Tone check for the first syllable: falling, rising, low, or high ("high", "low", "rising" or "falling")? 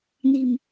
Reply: low